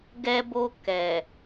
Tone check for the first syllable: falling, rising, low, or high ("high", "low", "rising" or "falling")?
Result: high